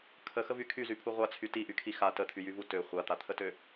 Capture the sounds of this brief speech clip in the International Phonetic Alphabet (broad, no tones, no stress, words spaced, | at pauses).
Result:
kʰəxəvy kʰyzypʰu ʁʷat͡sʰy tiʔykʰi xa tət̪ʰyjyvu tø χʷat̪at̪ʰətø